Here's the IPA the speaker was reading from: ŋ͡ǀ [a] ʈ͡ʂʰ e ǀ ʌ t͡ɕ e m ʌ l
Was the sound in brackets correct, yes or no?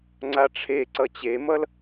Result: yes